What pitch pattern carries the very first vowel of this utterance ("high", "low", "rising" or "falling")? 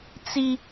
high